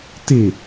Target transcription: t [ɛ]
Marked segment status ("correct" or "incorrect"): incorrect